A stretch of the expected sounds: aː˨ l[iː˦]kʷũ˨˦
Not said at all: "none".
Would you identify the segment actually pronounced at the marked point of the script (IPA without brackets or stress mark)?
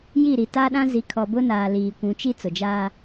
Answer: iː˨